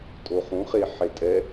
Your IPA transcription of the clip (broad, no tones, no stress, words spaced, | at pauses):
tʼoχũχe ħetʼɛ